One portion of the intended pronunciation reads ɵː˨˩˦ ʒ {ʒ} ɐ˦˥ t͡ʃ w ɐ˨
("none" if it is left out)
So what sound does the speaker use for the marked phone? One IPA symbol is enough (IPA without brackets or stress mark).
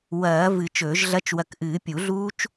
ɮ